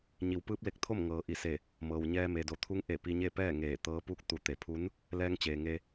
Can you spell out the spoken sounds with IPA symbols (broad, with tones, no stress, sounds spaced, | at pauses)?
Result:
ɲ i˩˧ w p ɯː˧˥ p̚ l e˧ k̚ t̪ʰ o˥˨ m ŋ ɤː˩ ʔ i˧˩ s e˧˩ | m ɤː˩ w ɲ ɛː˧ m e˩ d o˩ t̪ʰ u˧˥ ŋ ʔ e˧˩ p i˧ ɲ e˥˨ p ɛː˥˨ ŋ eː˧˩ t̪ ɤː˧˥ p u˥˨ k̚ t̪ u˩˧ t̪ e˩ pʰ u˧˥ n | l ɛː˧ ŋ t͡ɕ eː˩ ŋ e˧